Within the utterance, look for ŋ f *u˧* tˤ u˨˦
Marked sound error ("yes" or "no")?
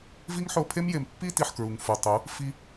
yes